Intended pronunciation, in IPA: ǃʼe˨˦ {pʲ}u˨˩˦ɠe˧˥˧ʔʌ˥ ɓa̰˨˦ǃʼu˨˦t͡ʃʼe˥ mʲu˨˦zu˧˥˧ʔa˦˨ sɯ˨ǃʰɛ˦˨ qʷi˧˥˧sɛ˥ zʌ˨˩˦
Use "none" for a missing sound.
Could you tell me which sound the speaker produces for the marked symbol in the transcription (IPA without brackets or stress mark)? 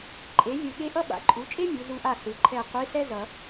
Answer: vʲ